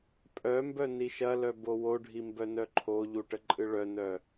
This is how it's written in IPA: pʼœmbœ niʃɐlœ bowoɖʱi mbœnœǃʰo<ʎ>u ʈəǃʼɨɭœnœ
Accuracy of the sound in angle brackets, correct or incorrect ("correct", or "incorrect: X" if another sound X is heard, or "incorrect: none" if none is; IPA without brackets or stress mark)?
correct